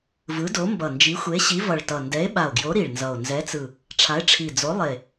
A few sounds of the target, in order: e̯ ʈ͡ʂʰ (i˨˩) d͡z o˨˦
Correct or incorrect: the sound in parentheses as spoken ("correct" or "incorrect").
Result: correct